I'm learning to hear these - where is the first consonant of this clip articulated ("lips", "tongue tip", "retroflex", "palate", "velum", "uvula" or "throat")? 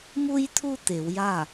lips